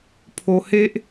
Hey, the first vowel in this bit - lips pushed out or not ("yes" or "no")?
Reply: yes